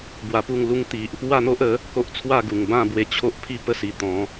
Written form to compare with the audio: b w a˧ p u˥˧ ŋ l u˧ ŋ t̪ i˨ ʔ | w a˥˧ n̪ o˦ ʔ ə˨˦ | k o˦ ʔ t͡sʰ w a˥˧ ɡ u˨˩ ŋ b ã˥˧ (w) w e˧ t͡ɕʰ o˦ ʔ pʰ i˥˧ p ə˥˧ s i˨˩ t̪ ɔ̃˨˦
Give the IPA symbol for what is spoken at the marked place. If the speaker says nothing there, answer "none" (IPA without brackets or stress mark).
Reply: b